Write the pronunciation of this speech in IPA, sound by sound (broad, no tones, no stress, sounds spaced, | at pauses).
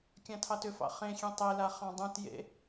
kʲ ã tʰ ɑ t ʏ f ɑ̰ χ ẽ xʲ ẽ tˤ e l a χ ɑ̃ dˤ ũ t j ḛ